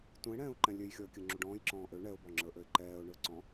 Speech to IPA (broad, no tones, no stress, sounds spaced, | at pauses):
t ũ ɪ̯ ɽ ɛ̃ː ʊ̯ ǃ ɛ̃ lʲ ø j xʲ ɔ ə̯ kʲ ə ŋ͡ǁ u ɖ ɔ̃ː j ǁ ɔ̃ː ʔ ø ɳ ɛ ʊ̯ b ɔ ŋ͡ǁ ə˞ ʔ ø ɪ̯ ǃ ɛː ʊ̯ ɳ ə˞ ǀ ɔ̃